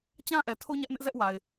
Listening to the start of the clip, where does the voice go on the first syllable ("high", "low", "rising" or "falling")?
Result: high